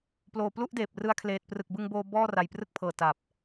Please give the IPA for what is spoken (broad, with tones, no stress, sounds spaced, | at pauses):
p l oː˨˩ p l u˥˩ ʔ d eː˨˩ p̚ r ɯ˦˥ a̯ kʰ l eː˨˩ t̚ p r ɯ˨˩ k̚ b ɯ˧ ŋ b oː˧ b ɔː˥˩ r a˨˩ j p r ɯ˥˩ k̚ pʰ ɤː˨˩ t a˨˩ p̚